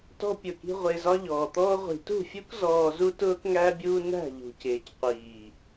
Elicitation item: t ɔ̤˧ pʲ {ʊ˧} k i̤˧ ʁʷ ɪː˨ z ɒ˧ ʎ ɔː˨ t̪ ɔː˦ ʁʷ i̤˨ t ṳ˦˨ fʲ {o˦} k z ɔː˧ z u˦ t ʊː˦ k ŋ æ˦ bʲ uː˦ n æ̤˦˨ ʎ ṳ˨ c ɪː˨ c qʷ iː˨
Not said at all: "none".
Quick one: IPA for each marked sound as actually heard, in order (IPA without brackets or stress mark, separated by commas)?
ʊ˨, u˦